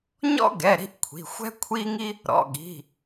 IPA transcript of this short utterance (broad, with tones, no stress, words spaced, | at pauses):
ɲɔ̰˥ɡɛ˩˧˩ ɾi̤˥ʔkʷʰi̤˩˧˩ xʷɛ̤˥kʷʰi˥ŋi˥ | ɾɔ̰˩˧˩ɠi̤˩˧˩